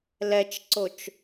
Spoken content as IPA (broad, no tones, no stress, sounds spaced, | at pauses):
l ɛ t͡ʃ ǀ o t͡ʃ